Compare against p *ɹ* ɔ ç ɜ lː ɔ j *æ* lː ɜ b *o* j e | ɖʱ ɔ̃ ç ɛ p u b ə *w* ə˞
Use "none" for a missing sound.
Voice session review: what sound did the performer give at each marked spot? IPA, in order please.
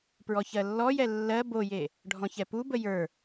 ɹ, ɛ, o, j

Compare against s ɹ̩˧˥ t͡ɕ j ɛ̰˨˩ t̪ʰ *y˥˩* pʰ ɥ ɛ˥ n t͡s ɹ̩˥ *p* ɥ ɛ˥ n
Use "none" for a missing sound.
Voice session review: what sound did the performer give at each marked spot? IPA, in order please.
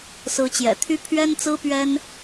y˥, p

